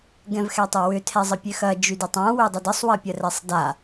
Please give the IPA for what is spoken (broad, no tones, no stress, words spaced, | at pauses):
ɡɛ̃vxɛtˤɛwʏ tʰɛzˤəpʲøxɐ d͡ʒydɪtˤã wødˤədəsˤwɐ pʲɐrɛsˤda